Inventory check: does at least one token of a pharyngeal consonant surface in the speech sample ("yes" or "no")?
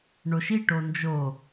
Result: no